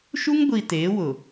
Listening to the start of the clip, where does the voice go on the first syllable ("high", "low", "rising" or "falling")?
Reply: high